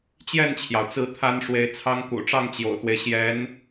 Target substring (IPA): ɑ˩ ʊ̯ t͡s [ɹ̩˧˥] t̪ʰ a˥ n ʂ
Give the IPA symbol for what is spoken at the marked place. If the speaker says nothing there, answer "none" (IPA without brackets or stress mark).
ɹ̩˧˥